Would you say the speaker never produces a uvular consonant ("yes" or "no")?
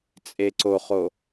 no